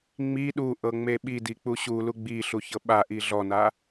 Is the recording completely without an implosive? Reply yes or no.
no